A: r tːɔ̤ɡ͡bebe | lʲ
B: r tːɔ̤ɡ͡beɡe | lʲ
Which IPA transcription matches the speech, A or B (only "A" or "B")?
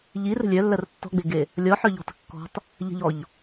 B